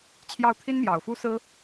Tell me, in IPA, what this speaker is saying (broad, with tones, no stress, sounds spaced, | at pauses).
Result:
t͡ɕʰ j ɑ˥˩ ʊ̯ t̪ʰ i˥ n m j ɑ˨˩ ʊ̯ f u˥ s ɹ̩˥